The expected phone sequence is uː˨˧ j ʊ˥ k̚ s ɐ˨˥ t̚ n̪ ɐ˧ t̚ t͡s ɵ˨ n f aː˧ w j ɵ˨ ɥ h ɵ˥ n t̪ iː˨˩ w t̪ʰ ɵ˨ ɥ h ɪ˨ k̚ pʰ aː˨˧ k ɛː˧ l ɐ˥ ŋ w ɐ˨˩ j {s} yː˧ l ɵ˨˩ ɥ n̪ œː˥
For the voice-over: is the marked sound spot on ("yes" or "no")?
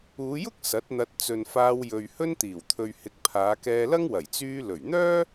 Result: no